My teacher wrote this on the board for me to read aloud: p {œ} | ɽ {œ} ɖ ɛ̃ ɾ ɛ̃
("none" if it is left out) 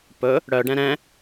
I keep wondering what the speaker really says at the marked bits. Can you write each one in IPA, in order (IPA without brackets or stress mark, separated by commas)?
ɵ, œ